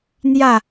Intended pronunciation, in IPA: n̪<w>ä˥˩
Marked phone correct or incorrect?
incorrect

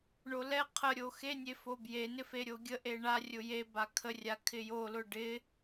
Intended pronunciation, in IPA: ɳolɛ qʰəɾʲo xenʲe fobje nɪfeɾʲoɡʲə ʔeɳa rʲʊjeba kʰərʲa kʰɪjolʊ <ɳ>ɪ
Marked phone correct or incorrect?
incorrect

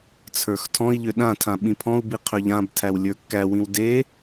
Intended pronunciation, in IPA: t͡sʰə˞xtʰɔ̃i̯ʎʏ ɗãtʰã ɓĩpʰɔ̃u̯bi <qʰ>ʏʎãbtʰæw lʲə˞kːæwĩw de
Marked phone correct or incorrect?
correct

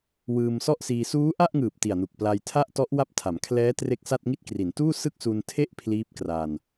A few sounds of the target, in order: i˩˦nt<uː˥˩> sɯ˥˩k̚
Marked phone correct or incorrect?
correct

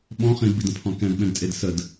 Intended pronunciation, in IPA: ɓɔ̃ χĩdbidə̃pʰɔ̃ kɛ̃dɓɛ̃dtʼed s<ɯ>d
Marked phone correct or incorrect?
incorrect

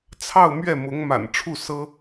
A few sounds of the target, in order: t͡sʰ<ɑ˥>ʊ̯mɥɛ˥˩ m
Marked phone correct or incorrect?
incorrect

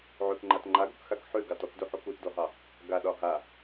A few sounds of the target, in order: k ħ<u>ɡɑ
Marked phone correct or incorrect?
incorrect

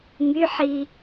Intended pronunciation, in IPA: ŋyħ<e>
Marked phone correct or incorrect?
incorrect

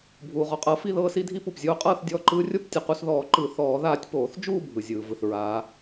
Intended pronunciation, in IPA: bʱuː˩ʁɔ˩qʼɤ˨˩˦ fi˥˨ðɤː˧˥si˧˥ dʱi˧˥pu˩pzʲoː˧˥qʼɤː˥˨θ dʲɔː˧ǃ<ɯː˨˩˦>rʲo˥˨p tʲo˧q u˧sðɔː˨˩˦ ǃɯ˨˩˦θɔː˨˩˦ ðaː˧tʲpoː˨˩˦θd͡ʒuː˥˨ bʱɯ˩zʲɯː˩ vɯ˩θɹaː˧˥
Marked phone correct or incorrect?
incorrect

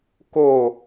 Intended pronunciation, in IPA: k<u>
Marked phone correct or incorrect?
incorrect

